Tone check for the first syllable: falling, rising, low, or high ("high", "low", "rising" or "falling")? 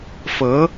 rising